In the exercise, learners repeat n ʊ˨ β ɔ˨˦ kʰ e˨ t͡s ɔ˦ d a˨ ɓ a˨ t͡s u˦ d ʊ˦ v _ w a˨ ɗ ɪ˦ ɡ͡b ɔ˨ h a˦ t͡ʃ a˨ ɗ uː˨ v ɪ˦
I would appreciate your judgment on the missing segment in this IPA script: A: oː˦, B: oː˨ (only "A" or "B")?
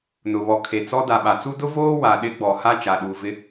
A